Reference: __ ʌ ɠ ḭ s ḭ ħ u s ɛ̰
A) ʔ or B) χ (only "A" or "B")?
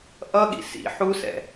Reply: A